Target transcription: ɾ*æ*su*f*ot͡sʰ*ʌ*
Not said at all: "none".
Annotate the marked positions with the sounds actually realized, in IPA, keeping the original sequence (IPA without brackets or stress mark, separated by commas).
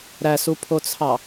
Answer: æ, pʰ, ɑ